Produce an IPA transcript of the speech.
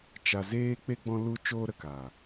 t͡ʃ a˨ z eː˧ k͡p e˦ ɡ͡b ɔ̃˧ l u˧ t͡ʃ oː˧ ɾ ə˨ k aː˨

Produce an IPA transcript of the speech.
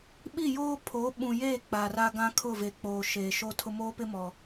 ɓ i˦˨ j oː˦ pʰ o˨˦ ɓ ũ˨ j eː˦˨ k͡p aː˨ r a˦ ɡ ã˦ kʰ ʊ˦˨ v e˨ k͡p oː˨ ʃ eː˨ ʃ o˦ tʰ ʊ˦ m oː˦ p ɪ˦ m ɔ˨

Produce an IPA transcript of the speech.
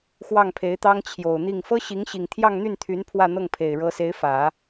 x w ɑ˥˩ ŋ pʰ e˧˥ ɪ̯ t̪ ɑ˥ ŋ t͡ɕʰ j o˨˩ ʊ̯ n̪ i˥˩ ŋ f ɤ˥ ɕ i˧˥ ŋ ɕ i˨˩ ŋ t̪ʰ j ɑ˥˧ ŋ n̪ y˥˩ n t̪ʰ y˧˥ n pʰ w ä˥˧ n̪ ɤ˥˩ ŋ pʰ e˨˩ ɪ̯ ɻ ɤ˧˥ s e˧˥ ɪ̯ f ä˨˩˦

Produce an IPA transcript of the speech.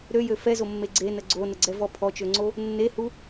ɾ ø j ø f ɛ z o mː e ɡ͡ǀ e n ə ɡ͡ǀ o n ə ɡ͡ǀ ɛ v ɔ pʰ ɔ t͡ʃ ø ŋ͡ǀ o | nː e h u

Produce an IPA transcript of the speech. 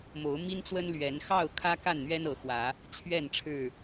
m o˨˦ ʊ̯ m i˦ n t͡s w ə˦ n l ɥ ɛ˨˦ n x ɑ˥˨ ʊ̯ kʰ ä˦ k a˥˨ n n̪ ɥ ɛ˦ n ɤ˨˦ x w ä˨˦ | t͡ɕʰ ɥ ɛ˥˨ n ʈ͡ʂʰ ɻ̩˥˨

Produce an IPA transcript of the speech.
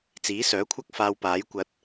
t͡s iː˨˥ s œː˨˥ kʷʰ ɐ˥ k̚ f aː˧ w p aː˨˥ j kʷ ɐ˧ t̚

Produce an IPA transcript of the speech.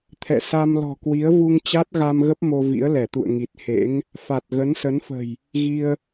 t̪ʰ ɛ̰˧˨ s a˧ m l ɔ̤˨˩ k w i˨˦ ə̯ v u˧ ŋ t͡ɕ a˦˥ t̚ ɣ a˧ m ɣ ə˦˥ p̚ m o˧ v ḭ˧˥ ə̯ l ɛ˧˩ t̪ ṵ˧˨ ə̯ ŋ i˨˩ t̚ h ḛ˧˥ ŋ | f a˨˩ t̚ ɣ ə˨˦ n s ə˨˦ n f ə̤˨˩ j | ɣ i˧ ə̯

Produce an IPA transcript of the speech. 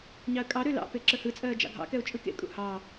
ɲ ɑ ə̯ kʼ ɑ ɾ ø l ɑ̰ p e ǁ ə h ɯ t͡sʼ ɜː d͡ʒ ɑ̰ ɡʱ ɑ̰ k ɛ ʊ̯ t͡ʃʼ ɯ k ḛ kʼ ṵ h ɑ

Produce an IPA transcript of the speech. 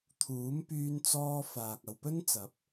t̪ʰ uː˨˥ m p yː˧ n t͡s ɔː˧ f aː˨ k̚ ɐ˨ w p ɵ˥ n t͡s ɐ˨˥ p̚

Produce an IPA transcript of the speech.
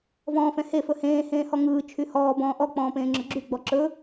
v ɔ̃ː f ɛ̃ h e f ɵ h ẽː h ẽː h ɔ ŋ ɯː t͡ʃʰ y h ɔː b ɔ̃ː ʔ ɔ k͡p ɔ̃ː p ẽː ŋ͡ǁ ɵ ɡ͡ǁ y ɡ͡b ɔ ǁ ɵ

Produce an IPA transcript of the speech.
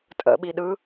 tʼ ə̰ ɓ i ɗ ɯ

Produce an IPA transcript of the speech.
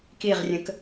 k i ʁ rʲ ə̃ k

